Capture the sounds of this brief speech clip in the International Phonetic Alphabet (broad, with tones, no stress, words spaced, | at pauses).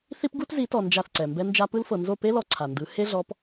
θi˦pɡu˦tzi˨˦tɔ˨ nd͡ʒa˦˨θǀɛ˨ mbɛ˦nd͡ʒa˦ pɯ˦lfɤ˨ nzo˦˨pe˦lɔ˨ ǀʰa˨ndɯ˨˦ he˦ɮɔ˨˦p